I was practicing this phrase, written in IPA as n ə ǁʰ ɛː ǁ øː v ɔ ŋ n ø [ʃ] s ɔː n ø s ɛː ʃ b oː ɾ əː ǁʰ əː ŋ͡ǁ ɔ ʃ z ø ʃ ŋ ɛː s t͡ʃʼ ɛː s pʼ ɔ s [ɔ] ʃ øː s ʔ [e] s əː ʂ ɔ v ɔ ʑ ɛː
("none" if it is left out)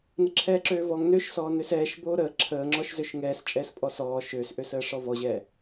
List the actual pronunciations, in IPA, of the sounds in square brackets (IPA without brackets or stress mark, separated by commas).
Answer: ʃ, ɔː, ø